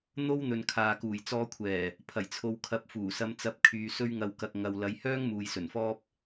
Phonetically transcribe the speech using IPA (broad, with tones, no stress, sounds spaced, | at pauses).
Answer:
n̪ o˥ w n̪ ɵ˨ n kʰ aː˨ k uː˨˩ j t͡s ɔː˧ kʷʰ ɛː˨˩ | pʰ ɐ˨˩ j t͡sʰ o˨˧ w kʰ ɐ˨˥ p̚ f uː˨˩ s ɐ˧ m t͡s ɐ˧ p̚ kʰ yː˨ s ɵ˥ ɥ ŋ ɐ˧ w k ɐ˧ k̚ ŋ ɐ˨ w l ɐ˨˧ j h œː˥ ŋ m uː˨ j s ɵ˨˩ n f ɔː˥ p̚